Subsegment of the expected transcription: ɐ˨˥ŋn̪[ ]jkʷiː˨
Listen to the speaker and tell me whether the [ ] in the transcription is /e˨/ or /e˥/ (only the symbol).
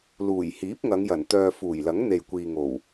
e˨